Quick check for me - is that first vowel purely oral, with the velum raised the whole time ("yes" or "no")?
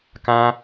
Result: no